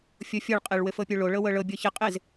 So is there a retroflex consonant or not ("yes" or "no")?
yes